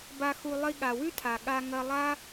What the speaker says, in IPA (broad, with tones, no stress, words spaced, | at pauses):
ba˧xu˧ lˠi˧ɠa˨wʉ˦tʰa˨ ɠa˧ŋɐ˧lˠa˦